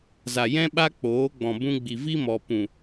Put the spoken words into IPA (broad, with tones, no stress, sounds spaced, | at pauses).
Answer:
z a˨ j ɛ̃˦ ɓ a˦ k͡p oː˨˦ ɡ͡b ɔ̃˨ b ũ˧ ɡ͡b i˨ v i˦ m ɔ˨ p ũ˨